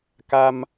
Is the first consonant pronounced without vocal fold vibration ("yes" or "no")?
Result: yes